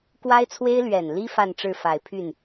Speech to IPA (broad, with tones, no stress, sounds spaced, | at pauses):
k w a˥ ɪ̯ t͡sʰ w e˥ ɪ̯ l ɥ ɛ˨˩ n l i˥ f a˥˧ n ʈ͡ʂ ɻ̩˥˩ f a˨˩ ɪ̯ pʰ y˥˩ n